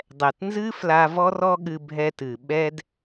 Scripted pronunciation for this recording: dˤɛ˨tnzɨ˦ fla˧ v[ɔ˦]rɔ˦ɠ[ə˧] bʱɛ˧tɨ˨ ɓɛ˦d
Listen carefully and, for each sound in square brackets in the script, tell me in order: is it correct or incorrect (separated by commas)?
correct, incorrect